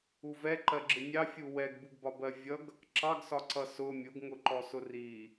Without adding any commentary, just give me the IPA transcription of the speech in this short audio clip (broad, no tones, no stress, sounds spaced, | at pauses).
u v ɛ ǃ ɜ ɡ͡ǁ ɪ nʲ ɑ fʲ u w ɛ ɡ b u ɡ b ɒ b ɜ vʲ ʌ ɡ | ǁ ɑ ɡ s ɒ ǀ ʌ s ʊ mʲ ʊ ɡ ŋ ʊ ǃ ɔ s ʊ r i